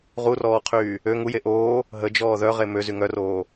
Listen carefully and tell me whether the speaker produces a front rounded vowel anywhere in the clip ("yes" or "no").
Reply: yes